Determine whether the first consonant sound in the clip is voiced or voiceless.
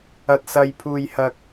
voiceless